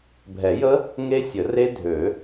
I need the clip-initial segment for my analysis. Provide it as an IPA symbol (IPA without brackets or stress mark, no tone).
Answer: bʱ